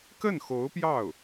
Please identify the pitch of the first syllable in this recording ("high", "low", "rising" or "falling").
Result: falling